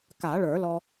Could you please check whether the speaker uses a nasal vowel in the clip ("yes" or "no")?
no